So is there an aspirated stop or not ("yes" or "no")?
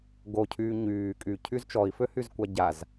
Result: yes